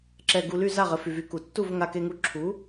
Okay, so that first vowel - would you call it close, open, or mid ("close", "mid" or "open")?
mid